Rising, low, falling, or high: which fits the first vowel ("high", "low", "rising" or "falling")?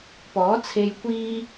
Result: rising